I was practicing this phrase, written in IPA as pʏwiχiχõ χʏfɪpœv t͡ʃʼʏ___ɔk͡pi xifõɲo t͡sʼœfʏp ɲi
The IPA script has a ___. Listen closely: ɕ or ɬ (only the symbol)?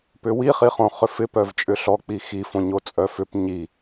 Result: ɬ